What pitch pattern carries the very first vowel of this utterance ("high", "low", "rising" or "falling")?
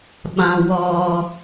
high